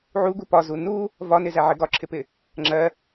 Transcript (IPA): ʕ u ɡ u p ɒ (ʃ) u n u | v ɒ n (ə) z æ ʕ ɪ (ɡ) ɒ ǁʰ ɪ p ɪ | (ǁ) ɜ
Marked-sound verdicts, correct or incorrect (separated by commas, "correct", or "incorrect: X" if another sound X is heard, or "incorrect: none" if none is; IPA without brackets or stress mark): incorrect: z, incorrect: ɪ, correct, incorrect: ŋ͡ǁ